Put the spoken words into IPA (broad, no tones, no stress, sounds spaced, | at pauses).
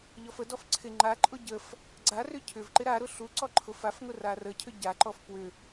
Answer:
ʎ ɔ f ə d ɔ f ǀʰ ɪ ŋ͡ǃ a ǃʼ ʊ ɟ ə f | ɡ͡ǀ a r ʏ cʰ ʏ v ǃ ɪ ɾ a ɾ ʊ ɬ u ǀ ɔ ǃʰ ʊ f a f ŋ ʊ r a r ə cʰ ʏ ɟ a ǃ ɔ f p w ʏ